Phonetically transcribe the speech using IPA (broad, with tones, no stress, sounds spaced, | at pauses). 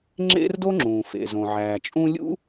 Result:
ŋ͡ǁ ḛ˥ r d o˥ ŋ͡ǁ ũː˩ f ḛ˩ z õ˩ ʕ æː˩ t͡ʃʼ ũ˥ lʲ ṵ˥